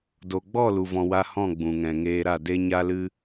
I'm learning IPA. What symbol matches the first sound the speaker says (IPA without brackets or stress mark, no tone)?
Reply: d